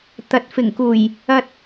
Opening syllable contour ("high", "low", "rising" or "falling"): rising